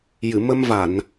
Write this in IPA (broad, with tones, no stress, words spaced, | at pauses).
jɨ˨˩˨mə˧m va˨˩˨n